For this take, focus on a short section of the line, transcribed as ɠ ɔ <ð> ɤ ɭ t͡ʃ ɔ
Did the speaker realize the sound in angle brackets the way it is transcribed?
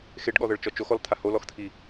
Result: yes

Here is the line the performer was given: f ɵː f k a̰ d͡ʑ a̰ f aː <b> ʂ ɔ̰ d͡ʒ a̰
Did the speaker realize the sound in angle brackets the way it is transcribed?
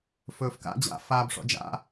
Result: yes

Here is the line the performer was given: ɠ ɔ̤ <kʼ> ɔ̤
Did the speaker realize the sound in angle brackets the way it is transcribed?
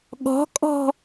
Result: yes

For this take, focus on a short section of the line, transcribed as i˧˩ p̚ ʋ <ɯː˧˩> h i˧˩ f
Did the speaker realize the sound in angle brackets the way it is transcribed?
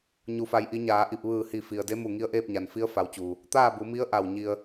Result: yes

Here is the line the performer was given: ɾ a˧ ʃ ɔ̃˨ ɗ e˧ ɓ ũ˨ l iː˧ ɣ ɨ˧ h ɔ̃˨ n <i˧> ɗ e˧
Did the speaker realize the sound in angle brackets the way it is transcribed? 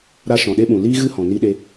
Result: yes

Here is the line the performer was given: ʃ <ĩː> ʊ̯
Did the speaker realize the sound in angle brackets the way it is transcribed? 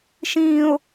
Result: yes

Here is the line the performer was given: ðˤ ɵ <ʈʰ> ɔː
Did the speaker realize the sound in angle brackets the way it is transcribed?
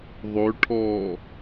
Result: yes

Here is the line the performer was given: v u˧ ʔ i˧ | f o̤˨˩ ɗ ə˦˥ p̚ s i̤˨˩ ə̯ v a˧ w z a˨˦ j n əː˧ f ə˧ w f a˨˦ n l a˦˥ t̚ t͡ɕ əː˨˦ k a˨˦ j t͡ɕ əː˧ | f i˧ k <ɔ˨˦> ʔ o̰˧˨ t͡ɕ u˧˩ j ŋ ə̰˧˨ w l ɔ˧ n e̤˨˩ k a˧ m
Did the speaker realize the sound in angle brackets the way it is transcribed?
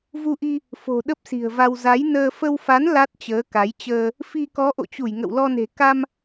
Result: yes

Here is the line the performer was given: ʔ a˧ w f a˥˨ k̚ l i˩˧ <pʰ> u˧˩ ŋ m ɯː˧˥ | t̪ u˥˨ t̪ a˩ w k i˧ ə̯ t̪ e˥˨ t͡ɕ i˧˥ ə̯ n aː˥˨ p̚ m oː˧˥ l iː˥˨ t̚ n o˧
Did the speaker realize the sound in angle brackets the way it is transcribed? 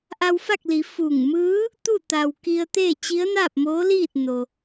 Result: no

